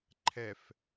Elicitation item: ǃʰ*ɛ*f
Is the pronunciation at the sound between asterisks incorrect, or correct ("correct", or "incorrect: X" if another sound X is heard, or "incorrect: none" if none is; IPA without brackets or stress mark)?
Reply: correct